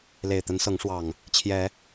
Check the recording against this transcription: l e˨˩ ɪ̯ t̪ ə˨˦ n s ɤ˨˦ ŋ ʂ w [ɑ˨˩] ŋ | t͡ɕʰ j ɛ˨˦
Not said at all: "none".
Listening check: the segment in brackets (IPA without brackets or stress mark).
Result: ɑ˨˩